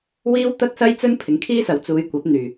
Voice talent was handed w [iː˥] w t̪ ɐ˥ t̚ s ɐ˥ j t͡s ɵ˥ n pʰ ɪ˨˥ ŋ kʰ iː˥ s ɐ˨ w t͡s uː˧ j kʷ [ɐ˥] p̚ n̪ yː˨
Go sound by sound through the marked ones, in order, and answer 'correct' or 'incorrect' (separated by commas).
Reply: correct, incorrect